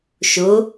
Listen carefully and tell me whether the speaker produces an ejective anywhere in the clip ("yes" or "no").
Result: no